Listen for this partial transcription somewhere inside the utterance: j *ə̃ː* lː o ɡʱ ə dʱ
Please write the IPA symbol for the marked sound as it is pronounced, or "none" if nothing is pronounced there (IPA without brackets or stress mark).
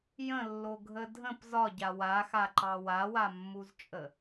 ə̃